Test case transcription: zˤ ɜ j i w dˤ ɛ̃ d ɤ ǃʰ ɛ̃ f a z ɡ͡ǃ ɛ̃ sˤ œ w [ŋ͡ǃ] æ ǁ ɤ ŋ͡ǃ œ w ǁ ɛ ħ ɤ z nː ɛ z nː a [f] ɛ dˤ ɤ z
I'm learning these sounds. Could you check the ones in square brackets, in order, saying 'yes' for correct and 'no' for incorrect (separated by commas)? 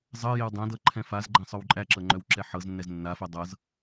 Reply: no, yes